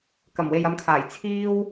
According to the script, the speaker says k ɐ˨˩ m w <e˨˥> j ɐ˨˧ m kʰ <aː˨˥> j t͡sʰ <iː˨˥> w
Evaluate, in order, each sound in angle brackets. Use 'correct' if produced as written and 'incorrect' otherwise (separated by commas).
incorrect, incorrect, incorrect